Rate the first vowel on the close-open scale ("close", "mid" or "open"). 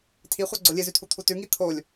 close